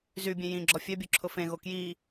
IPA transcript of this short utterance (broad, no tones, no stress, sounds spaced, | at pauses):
z y bʲ ẽ j ĩ ɡ͡ǁ ɔ fʲ œ bʲ o ǁʰ ʊ f ẽ ɣ o k j i